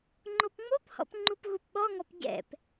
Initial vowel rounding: rounded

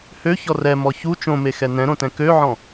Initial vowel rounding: rounded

